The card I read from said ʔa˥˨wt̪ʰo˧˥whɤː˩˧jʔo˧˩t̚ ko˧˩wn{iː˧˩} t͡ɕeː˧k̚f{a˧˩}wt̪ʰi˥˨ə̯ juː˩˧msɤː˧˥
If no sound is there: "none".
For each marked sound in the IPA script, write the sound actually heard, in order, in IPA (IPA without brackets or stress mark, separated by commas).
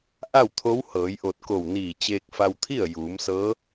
iː˧˩, a˧